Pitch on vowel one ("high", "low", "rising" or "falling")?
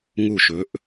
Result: falling